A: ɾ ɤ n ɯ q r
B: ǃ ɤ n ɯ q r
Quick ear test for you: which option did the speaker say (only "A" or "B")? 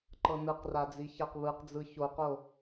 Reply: B